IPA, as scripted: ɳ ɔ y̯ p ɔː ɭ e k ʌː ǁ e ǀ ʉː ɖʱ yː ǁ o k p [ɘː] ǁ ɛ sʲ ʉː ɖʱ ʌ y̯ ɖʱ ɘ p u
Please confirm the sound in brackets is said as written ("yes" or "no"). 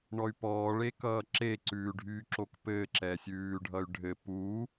yes